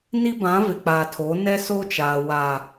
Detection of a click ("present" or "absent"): absent